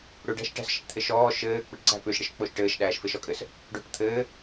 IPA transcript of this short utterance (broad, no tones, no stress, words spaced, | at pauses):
ɽʉɖæ̤ʃ ʈæ̤sʃɪʈt̪ʰɪʃɔː ʃɘːk͡pɪʈǀæ̤ pʉʃɽɪʃk͡poʃ ʈɘːʃɗæːʃ fɪʃɔkʼɘs | ɖo̤ʈ t̪ʰɘː